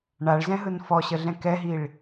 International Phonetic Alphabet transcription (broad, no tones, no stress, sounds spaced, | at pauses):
ɳ a ɭ z ɛ̃ ɦ ɯ n f ɔ ɕ ə ɮ ɛ̃ k ɛ ɦ i ɭ